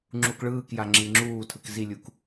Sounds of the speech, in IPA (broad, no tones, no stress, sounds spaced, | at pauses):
ŋ͡ǁ u k ɭ ɯː k j a ŋ͡ǁ i ŋ͡ǁ uː tʰ ɯ k z i lʲ u k